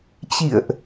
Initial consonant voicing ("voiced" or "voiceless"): voiceless